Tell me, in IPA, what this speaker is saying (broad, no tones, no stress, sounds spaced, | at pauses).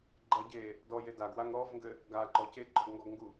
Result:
ɡ͡ǃ ɐ ɟ e | d ɔ j e d a ɡ w a ŋ ɾ ɔ v ŋ ɡ ɘ | ɡ a ǃ ɔ c e ɡ͡ǃ ɔ ɡ ŋ ɡ ɔ ɡ ŋ ɡ u